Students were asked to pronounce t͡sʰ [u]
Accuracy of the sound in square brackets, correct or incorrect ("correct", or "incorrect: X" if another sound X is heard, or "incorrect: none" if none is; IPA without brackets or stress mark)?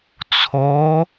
incorrect: o